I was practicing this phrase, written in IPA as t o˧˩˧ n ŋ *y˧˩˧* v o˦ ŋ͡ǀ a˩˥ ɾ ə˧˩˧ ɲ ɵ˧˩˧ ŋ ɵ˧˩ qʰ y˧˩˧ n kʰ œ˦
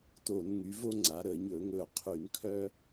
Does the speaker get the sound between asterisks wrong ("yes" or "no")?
yes